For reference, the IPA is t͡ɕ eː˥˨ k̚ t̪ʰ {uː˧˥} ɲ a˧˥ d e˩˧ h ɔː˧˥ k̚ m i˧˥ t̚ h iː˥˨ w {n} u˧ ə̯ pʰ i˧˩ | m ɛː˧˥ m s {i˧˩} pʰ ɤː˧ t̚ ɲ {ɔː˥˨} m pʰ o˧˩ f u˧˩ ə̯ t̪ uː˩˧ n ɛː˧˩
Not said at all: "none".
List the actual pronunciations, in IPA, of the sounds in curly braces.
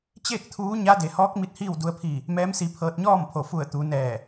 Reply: uː˧˥, d, i˧, ɔː˥˨

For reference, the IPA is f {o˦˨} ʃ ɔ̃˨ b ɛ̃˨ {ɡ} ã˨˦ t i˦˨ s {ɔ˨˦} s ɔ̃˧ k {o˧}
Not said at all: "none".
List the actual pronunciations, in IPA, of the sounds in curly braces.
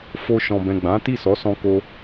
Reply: o˧, ɡ͡b, ɔ˨˦, o˧

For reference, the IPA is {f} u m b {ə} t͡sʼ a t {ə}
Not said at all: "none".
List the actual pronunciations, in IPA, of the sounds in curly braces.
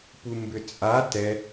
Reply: p, ʏ, ɛ

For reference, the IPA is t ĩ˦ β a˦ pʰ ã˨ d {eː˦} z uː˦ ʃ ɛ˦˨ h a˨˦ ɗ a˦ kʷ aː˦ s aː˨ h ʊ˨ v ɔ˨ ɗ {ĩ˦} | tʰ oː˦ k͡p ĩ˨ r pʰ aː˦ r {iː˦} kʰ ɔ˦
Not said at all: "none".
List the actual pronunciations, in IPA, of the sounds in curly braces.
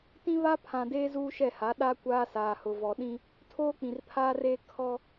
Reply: eː˦, ĩ˦, eː˦

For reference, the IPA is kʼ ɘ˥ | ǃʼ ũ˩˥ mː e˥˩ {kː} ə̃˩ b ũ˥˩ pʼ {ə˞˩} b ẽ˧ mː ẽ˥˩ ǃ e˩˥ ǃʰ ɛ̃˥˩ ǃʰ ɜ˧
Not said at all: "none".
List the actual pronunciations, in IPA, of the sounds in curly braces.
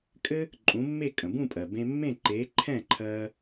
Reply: kʼ, ɜ˩

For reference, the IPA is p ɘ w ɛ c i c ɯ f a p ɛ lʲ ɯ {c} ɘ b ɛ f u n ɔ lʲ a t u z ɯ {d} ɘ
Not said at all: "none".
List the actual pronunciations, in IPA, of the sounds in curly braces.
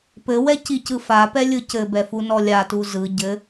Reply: c, ɟ

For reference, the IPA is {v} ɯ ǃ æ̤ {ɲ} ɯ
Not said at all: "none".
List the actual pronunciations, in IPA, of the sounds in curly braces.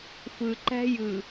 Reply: f, j

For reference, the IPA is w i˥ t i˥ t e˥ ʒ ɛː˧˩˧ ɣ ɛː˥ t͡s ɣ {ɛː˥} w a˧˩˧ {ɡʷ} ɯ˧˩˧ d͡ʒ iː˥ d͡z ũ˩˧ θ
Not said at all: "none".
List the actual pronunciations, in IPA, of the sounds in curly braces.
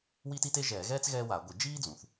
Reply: ɛː˥, ɡʷ

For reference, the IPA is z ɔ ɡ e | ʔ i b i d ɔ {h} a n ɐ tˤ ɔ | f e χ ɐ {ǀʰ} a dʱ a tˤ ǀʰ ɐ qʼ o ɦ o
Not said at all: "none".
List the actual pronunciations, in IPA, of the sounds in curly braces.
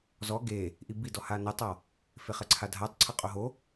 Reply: h, ǀʰ

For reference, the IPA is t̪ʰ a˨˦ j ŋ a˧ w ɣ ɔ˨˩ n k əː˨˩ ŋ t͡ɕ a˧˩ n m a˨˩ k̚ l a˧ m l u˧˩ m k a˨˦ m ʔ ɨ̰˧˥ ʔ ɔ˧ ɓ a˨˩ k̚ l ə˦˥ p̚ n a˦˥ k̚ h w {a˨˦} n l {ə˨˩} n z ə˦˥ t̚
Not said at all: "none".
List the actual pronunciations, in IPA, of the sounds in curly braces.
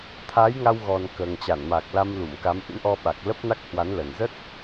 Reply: a˨˦, ə˨˩

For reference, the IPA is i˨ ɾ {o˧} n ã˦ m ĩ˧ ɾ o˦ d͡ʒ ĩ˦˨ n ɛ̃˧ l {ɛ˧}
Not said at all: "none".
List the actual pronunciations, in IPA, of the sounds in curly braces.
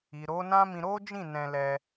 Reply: o˨˦, ɛ˧

